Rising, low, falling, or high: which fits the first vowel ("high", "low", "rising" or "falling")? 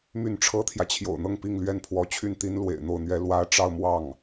falling